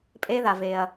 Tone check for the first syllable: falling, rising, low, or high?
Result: high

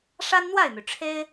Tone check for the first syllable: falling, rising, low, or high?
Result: high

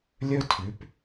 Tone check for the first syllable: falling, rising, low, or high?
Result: high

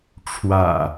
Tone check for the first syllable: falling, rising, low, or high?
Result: low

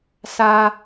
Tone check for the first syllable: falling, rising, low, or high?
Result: high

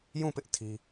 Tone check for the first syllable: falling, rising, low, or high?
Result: falling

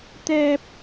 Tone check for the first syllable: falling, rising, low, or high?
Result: high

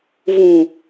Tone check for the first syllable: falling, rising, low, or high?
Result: low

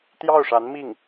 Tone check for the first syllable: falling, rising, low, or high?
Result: falling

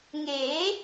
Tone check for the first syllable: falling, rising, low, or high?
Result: rising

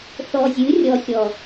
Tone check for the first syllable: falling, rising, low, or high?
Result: low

